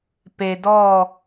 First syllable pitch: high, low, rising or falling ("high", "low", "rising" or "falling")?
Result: low